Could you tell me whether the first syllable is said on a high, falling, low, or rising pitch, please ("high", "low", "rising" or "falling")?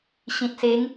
low